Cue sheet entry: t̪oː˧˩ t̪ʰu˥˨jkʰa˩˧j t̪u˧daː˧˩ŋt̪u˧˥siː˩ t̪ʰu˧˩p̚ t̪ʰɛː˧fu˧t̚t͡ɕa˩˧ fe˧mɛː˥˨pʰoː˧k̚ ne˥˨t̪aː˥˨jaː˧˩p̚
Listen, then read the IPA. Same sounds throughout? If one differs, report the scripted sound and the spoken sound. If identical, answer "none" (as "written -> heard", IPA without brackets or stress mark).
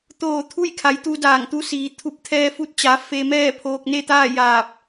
none